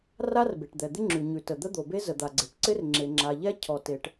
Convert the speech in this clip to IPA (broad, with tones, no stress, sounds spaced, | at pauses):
r a˥ r b e˩ ʈ d̪ ɛ˩ d̪ ɪ˥ ŋ͡ǁ ʉ˩ ɲ ʉ˩ t ə˩ d̪ ə˥ d̪ o˩ b e˥ z ə˩ d̪ a˩ ɡ͡ǀ e˩ ʈ ǀ ɪ˥ r ŋ͡ǁ e˩ ŋ͡ǁ a˩ ʎ ɛ˥ cʰ ɔ˩ t e˩ ʈ